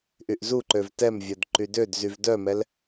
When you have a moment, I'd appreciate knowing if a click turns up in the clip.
yes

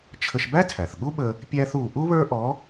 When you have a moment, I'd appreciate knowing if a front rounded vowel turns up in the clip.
no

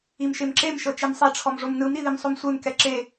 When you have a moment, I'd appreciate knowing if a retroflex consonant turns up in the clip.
yes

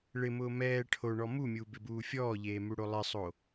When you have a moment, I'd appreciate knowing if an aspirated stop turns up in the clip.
yes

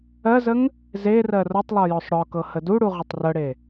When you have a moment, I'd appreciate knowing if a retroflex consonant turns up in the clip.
yes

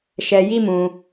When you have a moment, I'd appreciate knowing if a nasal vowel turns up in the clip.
yes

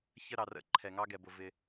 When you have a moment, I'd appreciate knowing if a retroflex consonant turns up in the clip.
no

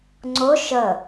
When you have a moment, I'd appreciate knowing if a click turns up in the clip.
yes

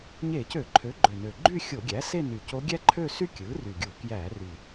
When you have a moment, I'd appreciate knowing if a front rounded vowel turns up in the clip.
yes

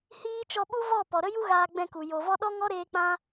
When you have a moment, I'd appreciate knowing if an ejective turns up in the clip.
no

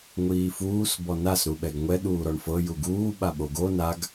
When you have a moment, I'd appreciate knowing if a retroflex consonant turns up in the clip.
yes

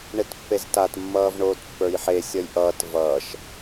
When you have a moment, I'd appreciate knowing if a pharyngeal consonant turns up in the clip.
yes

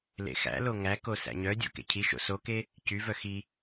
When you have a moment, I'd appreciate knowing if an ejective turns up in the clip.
no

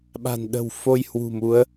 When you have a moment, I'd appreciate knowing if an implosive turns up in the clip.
yes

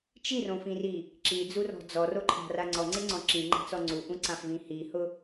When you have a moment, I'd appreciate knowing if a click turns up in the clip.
yes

